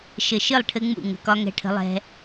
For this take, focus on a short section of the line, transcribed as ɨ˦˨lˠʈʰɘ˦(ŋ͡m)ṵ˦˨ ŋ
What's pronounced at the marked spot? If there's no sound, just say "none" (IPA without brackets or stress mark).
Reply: ŋ͡m